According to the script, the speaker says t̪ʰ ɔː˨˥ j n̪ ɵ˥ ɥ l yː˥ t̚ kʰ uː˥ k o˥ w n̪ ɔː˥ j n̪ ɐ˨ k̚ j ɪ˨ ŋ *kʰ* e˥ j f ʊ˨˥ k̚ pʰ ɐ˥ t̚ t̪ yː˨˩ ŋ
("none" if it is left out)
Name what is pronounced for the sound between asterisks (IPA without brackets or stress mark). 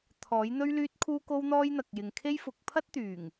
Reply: kʰ